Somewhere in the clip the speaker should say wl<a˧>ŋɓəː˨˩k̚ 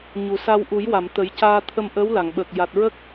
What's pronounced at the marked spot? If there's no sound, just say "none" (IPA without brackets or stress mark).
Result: a˨˩˨